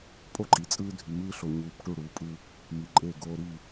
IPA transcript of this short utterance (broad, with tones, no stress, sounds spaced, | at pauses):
pʼ o˦ ǃʼ i˨ t͡sʼ ɯː˦ dʱ y˨ m ɯː˦ ɬ o˨ ɲ uː˨ p ʈ u˦˨ ɽ uː˨ pʼ ɯ˦ | m i˨ ǃʼ e˦˨ ɡ oː˦ ɾ i˦˨